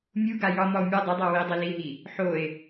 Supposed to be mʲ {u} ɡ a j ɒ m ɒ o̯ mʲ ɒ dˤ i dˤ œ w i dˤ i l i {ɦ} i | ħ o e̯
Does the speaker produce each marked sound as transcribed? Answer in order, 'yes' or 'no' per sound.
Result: yes, yes

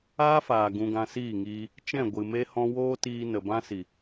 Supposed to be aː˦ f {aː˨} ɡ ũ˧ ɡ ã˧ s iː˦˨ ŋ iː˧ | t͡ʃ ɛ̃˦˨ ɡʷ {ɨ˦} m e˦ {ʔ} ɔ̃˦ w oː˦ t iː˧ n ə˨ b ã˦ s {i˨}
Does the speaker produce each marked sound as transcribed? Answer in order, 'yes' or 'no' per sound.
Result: yes, no, no, yes

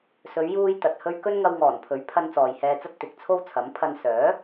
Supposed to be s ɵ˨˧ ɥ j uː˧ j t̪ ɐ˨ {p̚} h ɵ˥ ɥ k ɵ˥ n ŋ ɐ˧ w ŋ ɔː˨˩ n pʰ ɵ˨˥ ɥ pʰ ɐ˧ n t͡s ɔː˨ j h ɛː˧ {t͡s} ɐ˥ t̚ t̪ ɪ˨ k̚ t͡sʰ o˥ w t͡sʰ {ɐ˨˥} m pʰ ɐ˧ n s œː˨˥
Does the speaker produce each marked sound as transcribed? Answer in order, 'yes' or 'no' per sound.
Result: no, yes, yes

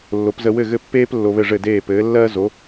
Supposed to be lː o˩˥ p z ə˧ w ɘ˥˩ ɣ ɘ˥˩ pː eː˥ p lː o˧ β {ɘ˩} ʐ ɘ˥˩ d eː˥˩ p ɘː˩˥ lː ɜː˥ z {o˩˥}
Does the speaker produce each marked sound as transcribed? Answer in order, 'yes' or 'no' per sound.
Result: no, yes

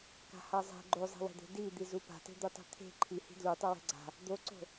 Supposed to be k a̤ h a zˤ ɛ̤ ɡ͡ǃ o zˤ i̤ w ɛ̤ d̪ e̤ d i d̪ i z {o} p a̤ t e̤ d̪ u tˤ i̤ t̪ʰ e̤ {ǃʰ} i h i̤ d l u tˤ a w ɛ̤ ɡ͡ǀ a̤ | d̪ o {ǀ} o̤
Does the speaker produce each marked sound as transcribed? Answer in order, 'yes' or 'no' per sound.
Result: no, yes, yes

